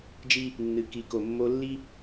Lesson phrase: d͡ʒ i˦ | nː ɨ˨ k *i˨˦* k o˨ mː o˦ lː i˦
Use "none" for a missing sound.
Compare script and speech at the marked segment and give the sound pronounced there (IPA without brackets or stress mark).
i˨˦